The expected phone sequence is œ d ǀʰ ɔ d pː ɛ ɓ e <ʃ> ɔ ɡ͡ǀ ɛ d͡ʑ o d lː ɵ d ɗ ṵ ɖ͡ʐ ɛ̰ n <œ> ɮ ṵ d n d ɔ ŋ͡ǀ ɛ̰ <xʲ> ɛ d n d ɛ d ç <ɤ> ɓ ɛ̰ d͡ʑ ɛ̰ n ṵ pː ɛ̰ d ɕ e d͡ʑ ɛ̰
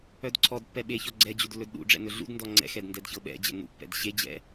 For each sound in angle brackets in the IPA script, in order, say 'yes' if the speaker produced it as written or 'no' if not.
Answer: no, no, no, yes

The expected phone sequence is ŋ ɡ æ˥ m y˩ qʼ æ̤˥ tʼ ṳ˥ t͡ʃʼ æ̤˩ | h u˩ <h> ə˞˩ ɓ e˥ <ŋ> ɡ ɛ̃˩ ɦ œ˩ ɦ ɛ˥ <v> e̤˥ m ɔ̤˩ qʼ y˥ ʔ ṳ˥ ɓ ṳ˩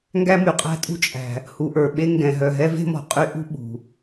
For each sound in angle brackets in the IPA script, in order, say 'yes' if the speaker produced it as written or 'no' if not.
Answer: no, yes, yes

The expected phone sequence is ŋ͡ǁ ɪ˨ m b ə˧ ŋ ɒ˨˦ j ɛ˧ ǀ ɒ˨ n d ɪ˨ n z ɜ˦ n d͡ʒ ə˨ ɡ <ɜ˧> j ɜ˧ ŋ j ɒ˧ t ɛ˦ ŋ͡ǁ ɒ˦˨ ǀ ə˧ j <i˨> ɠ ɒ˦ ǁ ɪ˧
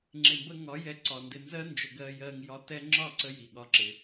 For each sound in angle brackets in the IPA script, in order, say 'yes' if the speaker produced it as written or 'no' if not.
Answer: yes, yes

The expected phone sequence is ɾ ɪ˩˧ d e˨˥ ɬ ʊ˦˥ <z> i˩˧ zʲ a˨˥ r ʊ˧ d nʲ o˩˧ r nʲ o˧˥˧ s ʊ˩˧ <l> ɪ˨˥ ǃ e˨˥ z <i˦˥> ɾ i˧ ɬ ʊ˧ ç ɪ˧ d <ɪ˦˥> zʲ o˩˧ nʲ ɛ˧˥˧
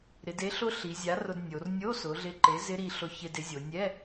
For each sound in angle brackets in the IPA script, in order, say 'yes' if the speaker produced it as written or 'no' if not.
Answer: no, no, no, no

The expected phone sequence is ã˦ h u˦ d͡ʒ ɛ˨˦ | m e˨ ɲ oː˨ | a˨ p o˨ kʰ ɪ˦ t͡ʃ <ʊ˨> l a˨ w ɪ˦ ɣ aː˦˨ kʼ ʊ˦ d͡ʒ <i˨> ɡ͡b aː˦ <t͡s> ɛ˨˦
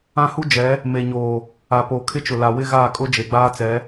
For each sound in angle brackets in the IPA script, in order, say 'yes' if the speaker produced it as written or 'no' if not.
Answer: yes, no, yes

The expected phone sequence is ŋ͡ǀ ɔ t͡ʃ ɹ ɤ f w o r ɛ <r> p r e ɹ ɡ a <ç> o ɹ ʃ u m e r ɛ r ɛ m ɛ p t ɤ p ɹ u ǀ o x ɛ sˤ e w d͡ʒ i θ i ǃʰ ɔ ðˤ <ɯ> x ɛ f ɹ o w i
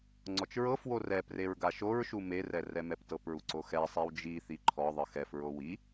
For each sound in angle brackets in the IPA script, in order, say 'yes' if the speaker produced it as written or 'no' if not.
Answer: no, no, yes

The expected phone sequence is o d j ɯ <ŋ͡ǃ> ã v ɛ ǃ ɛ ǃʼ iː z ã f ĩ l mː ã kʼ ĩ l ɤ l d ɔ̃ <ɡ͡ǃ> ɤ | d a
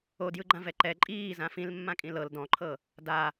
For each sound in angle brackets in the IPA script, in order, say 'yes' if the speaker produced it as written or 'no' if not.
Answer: no, no

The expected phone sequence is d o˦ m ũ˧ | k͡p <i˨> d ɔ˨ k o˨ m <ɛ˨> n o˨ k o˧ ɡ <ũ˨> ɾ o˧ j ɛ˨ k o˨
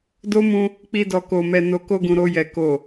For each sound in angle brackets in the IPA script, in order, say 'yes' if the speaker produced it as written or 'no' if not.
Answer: no, yes, yes

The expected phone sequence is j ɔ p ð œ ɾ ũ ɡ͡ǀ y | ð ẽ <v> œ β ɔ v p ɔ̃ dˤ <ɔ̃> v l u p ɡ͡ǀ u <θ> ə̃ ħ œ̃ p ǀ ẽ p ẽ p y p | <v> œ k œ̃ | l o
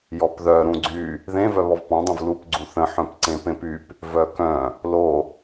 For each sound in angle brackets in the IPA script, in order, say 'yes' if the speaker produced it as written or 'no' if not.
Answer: yes, no, yes, yes

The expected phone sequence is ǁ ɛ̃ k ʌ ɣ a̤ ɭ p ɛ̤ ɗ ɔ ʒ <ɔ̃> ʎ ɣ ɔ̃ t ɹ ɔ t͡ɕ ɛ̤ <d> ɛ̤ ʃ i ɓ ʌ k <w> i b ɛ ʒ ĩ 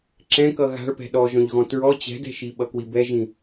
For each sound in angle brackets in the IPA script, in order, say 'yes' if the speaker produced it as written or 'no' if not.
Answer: yes, yes, yes

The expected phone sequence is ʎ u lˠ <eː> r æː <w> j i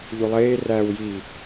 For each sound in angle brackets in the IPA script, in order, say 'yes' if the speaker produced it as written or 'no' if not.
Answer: yes, yes

